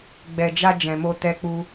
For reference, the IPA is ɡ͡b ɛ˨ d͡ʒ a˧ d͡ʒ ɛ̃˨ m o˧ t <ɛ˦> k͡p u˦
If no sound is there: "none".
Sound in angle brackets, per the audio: ɛ˦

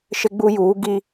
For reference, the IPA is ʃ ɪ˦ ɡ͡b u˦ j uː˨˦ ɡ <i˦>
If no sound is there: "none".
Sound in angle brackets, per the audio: i˦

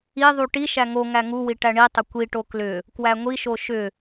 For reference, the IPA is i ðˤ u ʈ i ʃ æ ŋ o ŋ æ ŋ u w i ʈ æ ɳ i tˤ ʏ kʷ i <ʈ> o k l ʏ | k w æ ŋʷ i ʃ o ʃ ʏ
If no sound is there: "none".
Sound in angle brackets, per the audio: ʈ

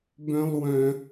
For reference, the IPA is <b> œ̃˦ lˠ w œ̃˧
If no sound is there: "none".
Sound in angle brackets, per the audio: b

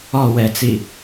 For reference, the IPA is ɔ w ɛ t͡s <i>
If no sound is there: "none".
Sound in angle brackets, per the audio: i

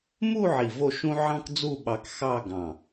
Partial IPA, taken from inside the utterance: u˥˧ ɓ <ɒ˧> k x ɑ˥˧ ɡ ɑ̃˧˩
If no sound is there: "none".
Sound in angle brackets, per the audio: ɑ˧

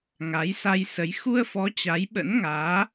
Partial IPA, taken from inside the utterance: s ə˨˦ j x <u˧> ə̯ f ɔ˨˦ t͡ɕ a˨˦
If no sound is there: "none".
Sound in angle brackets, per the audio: u˧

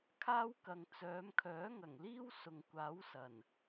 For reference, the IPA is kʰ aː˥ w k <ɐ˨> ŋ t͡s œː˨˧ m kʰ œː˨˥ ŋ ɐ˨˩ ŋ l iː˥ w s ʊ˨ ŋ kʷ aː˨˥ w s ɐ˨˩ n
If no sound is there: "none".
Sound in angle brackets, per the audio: ɐ˨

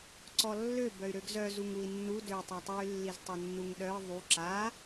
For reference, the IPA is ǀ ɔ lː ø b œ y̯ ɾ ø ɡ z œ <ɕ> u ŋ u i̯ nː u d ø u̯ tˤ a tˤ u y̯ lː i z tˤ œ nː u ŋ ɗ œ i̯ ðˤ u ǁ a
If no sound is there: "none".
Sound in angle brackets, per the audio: z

